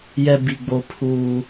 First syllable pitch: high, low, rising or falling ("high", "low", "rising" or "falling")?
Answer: high